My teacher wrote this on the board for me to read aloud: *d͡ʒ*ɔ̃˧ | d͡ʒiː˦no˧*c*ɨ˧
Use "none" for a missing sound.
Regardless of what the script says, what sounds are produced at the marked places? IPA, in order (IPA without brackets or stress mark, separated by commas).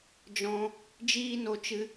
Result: d͡ʒ, t͡ʃ